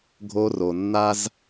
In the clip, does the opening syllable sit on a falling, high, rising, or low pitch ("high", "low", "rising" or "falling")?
high